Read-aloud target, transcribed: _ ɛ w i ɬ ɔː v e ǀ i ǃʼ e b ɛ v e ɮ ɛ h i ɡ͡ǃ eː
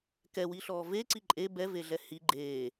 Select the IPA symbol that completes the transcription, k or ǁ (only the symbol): k